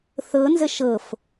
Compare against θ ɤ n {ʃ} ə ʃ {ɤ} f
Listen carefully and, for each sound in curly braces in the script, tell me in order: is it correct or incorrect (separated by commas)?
incorrect, correct